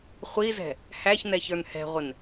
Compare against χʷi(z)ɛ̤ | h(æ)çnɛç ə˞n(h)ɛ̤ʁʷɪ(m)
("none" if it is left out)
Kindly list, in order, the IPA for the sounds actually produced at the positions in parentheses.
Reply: z, æ, h, n

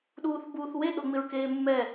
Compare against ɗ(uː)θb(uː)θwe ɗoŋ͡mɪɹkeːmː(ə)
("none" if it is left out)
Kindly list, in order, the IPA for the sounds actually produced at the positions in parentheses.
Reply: uː, uː, ɛ

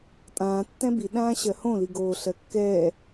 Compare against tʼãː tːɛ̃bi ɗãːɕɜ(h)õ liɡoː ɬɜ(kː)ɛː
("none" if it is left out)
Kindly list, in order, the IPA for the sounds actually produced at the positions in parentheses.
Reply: h, kː

